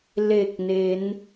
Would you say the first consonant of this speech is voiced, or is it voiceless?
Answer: voiced